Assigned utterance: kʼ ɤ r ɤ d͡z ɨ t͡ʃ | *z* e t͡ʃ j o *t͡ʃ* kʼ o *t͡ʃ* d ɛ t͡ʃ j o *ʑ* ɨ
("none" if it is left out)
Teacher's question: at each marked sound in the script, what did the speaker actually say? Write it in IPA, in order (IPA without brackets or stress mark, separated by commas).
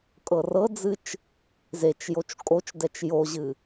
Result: z, t͡ʃ, t͡ʃ, ʑ